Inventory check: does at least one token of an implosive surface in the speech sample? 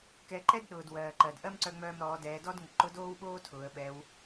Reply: yes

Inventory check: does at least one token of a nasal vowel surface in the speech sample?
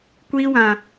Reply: yes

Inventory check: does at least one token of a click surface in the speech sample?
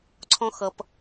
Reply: yes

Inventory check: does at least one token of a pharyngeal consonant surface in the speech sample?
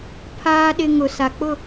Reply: no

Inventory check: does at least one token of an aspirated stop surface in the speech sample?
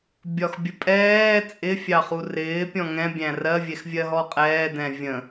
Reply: no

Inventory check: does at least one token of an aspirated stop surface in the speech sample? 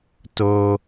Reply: no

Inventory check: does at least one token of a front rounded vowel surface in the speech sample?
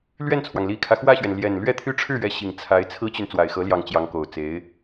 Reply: yes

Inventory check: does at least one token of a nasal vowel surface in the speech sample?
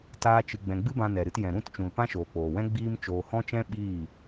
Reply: yes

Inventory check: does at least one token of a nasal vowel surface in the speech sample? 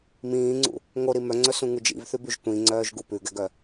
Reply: yes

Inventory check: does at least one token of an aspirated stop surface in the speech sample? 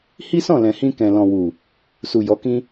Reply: no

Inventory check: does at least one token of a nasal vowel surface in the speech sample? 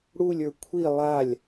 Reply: no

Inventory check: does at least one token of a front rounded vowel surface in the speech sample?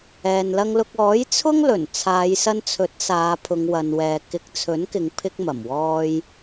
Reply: no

